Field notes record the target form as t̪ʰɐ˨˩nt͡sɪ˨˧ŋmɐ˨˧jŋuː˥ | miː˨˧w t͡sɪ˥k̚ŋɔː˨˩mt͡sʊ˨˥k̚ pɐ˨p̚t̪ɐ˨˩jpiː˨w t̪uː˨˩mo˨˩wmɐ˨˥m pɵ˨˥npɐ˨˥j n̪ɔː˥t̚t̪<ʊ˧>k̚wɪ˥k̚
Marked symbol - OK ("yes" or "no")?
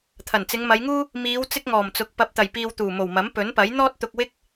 yes